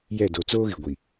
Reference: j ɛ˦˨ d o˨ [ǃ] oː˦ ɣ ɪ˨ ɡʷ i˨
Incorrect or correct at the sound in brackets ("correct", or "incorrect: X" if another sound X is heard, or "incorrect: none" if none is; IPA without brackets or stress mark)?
incorrect: t͡s